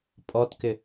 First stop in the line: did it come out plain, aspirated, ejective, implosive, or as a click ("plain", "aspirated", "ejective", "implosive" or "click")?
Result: ejective